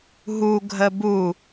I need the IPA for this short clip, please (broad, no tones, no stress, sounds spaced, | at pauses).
ɦ u ɡʱ ə b u